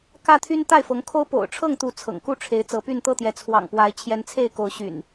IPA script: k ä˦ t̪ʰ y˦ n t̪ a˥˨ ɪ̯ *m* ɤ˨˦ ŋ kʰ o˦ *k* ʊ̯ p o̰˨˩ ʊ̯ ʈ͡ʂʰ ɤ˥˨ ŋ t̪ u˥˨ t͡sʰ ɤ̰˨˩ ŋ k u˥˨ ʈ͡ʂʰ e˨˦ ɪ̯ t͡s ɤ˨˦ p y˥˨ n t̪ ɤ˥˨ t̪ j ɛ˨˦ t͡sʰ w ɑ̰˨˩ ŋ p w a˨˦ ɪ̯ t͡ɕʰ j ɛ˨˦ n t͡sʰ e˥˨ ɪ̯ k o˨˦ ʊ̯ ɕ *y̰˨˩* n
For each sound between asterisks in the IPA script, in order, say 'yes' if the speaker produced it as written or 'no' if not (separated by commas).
no, no, yes